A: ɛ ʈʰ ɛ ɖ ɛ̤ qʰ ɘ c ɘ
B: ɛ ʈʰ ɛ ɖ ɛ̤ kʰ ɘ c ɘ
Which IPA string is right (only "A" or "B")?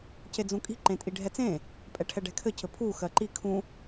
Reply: B